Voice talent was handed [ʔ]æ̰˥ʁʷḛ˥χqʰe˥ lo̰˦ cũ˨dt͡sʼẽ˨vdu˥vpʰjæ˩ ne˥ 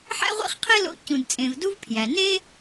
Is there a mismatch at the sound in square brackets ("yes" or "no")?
yes